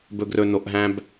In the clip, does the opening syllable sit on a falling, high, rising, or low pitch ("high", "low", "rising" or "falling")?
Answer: low